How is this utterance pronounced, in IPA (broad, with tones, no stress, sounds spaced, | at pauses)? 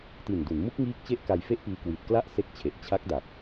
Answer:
t i˨˩ n d u˩˦ n m u˦˥ k̚ ŋ iː˦˥ k̚ t͡ɕ e˦˥ ʔ k a˧ j f e˦˥ ʔ p iː˧ k w i˨˩ t̚ k l a˥˩ ʔ s e˦˥ k̚ t͡ɕʰ e˨˩ ʔ t͡ɕʰ a˦˥ k̚ d a˨˩ p̚